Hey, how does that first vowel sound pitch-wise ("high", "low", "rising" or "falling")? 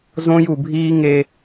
high